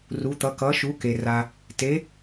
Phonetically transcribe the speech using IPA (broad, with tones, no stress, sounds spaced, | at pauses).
r u˨˥ t̪ ʌ˨˥ k ʌ˨˥ ʃ u˨˥ k e˨ r a˨ | t e˨˥